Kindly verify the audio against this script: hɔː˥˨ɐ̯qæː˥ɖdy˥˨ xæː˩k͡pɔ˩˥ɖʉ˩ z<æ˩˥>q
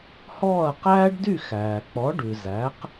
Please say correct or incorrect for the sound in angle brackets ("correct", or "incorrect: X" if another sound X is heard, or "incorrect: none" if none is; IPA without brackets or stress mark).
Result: correct